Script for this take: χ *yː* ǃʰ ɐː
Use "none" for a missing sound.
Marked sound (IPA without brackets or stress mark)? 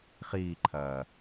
iː